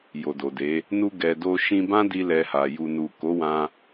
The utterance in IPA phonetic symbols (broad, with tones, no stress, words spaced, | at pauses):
jo˨do˨de˨˦ | nu˧ ɡɛ˨do˧ ʃĩ˧bã˦di˧ lɛ˧ha˨ ju˨nu˨ ko˨˦wã˧